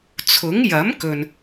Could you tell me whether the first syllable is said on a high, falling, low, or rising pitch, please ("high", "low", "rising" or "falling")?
rising